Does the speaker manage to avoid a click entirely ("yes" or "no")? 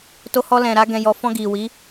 yes